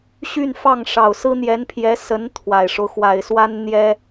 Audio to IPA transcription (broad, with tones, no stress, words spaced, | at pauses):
ɕy˥˧nfɑ˥˩ŋ ʂɑ˨˩ʊ̯sɹ̩˥n̪jɛ˧˥npʰjɛ˧˥ sə˧˥n t̪ʰwa˨˩ɪ̯ʂo˦ʊ̯ xwa˨˩ɪ̯swa˥n n̪jɛ˥